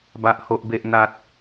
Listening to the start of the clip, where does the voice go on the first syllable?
high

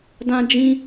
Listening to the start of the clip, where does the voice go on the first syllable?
high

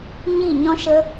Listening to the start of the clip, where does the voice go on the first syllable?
falling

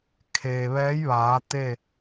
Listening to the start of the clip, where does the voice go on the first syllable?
low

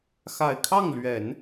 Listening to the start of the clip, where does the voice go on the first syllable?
low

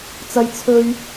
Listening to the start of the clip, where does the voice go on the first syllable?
high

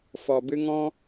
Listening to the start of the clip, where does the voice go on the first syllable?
low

